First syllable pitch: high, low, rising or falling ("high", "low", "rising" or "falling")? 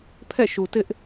falling